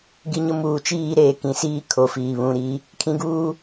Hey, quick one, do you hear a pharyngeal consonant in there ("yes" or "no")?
no